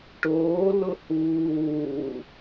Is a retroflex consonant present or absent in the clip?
present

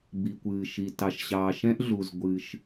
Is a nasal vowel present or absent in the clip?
present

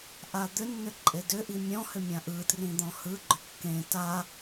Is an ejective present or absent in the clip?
present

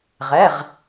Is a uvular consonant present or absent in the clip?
present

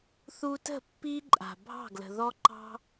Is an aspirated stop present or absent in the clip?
absent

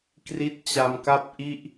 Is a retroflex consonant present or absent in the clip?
absent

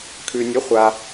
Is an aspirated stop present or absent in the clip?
present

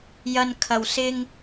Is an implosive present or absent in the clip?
absent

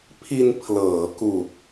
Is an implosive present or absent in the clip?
absent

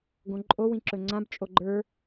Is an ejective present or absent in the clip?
present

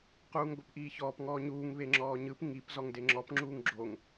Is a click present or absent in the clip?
present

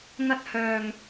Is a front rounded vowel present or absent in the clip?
present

